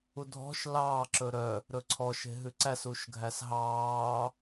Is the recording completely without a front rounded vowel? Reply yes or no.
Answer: no